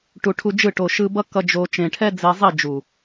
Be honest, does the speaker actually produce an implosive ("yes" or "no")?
no